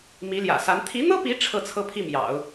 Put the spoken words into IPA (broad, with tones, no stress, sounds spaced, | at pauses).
m i˧˥ l j ä̰˨˩ s a˧˥ n t̪ʰ i˧˥ n̪ ɤ˥ p i˧˥ ʈ͡ʂʰ ɤ˥˩ t͡sʰ ɤ˥ pʰ i˥˩ m j ɑ̰˨˩˦ ʊ̯